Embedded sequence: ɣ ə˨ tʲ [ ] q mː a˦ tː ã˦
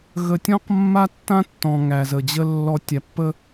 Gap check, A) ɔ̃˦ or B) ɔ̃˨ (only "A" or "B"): A